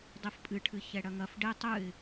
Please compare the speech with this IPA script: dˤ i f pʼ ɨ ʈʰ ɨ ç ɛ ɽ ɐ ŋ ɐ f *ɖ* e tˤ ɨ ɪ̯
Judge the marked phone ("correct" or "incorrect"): correct